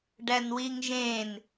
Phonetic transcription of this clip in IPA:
ɖænwiŋʒẽn

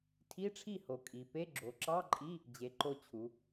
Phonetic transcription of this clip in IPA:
tʰi˧˥˧ʈ͡ʂʰi˥˩ ho˩˧kʼi˩˧pe˧˥˧ ɡ͡ǁo˩˧ǁɑ˧˥˧ǃʼi˧˥˧ | d͡ʑe˩˧ ǃo˧t͡ɕʰu˩˧

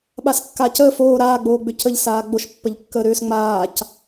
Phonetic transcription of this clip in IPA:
ɓaskːacəːf oː ɾaː ɡ͡boːɡ͡bʏcəʎ saːɡ͡boʃ pːəʎkːəːɾʏːs ŋ͡maːc

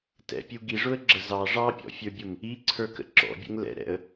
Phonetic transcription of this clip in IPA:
tɛ̰pʲu ɡiʐʊə̯ɡ͡ǁə zɑ ʐɑpʲɔ̰fʲə˞bʲʊm | iǀʰə˞kə̰ ǁɔ̰bʲə̰ŋ lɛ̰ɾɛ̰ə̯

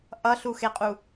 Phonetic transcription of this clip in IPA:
ʔʌɬuxeqʼu

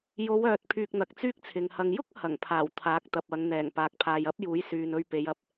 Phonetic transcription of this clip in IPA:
jo˨˧wœː˨t̚ pʰyː˧k̚n̪ɐ˨˥k̚t͡syː˥k̚t͡sʰɪ˨ŋ hɐ˨ŋjʊ˥k̚ hɐ˨˩ŋpʰaː˨˩w t̪ʰaː˨˥k̚t̪ɐ˨p̚ ɐ˨˧ŋn̪ɛː˨˩ŋ paː˨k̚pʰaː˨jɐ˥p̚juː˨˥j syː˨nɵ˧ɥpe˨˧jɐ˨p̚

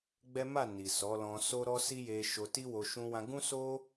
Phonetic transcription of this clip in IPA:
ɡ͡bɛ˦ ma˦˨ ni˨sɔ˨˦lɔ̃˧so˦ ɾɔ˦si˦je˧ ʃo˧ti˦wo˧ ʃũ˧wã˧ɡũ˦so˦

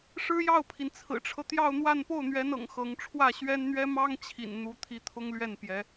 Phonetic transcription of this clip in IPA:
ʂɻ̩˥jɑ˥˩ʊ̯pʰi˩n t͡sʰɹ̩˨˩ʈ͡ʂʰɤ˦ t̪jɑ˥˧ʊ̯n̪wa˥˧n po˥˩ʊ̯n̪ɥɛ˧˥n ɤ̰˨˩ŋxɤ˧˥ŋ ʈ͡ʂʰwä˥˩ɕɥɛ˥nn̪ɥɛ˥ mɑ˥ŋt͡ɕʰḭ˨˩n n̪u˧˥t̪ʰi˧˥ t̪ʰʊ˥ŋlɥɛ˥˩n pjɛ˧˥

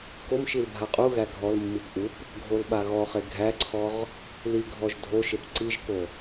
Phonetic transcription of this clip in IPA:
komʃil bʱaqʼuɣæ ɡʱɔlmːip ʔup | ɡʱolɓaɣɔχe ɡʱæǀʰɔʁ | liɡʱɔʒ dʱoʃep ǀiʒko

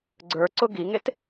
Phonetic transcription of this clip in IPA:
ɡ͡ǀə˞ǀʊ ɡiŋet

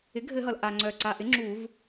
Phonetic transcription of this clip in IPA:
ɪ˩˥ɡʱɘ˧˩˧ɦʌ˩l ʔa˩ŋ͡ǀœ˩ǀa˩ʔɪ˩˥ ŋ͡ǁu˧˩˧v

